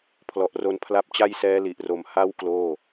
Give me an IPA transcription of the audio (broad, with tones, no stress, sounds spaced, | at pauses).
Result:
pʰ l ɔ˨˩ ʔ r o˧ n pʰ l a˦˥ p̚ t͡ɕ a˥˩ j s ɛː˦˥ l i˨˩ ʔ r o˨˩ m h a˦˥ w k l oː˥˩